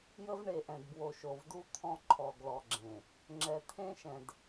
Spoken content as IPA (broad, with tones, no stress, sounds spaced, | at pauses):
j ə˦ v ɳ e˨ ʔ ɛ̃˨ d b w o˨ ʃ o˨ v d u˦ t̪ʰ ɔ̃˦ ǃʰ ɔ˨ ɡ l ɔ˨ ɡ͡ǁ ẽ˨ | ŋ͡ǁ ɛ˨ t̪ʰ ẽ˦ ʃ ɛ̃˨ d